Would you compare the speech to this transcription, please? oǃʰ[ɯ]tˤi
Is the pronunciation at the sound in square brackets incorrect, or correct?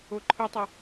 correct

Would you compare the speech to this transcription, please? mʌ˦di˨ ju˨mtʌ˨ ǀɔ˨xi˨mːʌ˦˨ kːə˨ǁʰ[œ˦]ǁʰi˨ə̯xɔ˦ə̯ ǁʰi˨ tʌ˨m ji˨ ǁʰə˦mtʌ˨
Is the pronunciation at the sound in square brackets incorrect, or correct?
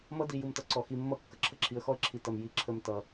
incorrect: ə˦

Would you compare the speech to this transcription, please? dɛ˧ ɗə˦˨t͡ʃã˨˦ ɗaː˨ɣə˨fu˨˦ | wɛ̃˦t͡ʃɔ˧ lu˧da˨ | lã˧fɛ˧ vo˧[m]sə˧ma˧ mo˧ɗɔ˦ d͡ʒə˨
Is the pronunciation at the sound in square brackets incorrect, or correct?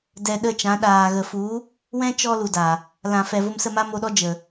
correct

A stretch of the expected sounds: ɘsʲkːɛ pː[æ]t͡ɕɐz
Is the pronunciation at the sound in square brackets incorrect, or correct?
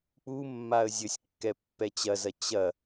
incorrect: ɛ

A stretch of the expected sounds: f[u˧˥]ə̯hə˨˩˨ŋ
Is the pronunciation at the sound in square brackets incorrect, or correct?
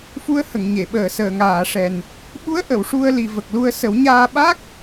correct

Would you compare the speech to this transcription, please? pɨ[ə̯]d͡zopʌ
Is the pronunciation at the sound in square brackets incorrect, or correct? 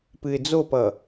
incorrect: ɪ̯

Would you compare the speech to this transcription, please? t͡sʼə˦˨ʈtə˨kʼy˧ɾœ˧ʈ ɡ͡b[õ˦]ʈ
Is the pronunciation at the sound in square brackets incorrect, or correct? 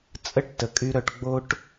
incorrect: o˦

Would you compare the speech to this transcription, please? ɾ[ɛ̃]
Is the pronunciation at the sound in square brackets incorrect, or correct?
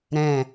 correct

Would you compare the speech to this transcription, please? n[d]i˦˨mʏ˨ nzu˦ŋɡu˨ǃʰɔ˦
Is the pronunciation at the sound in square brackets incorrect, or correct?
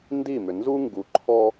correct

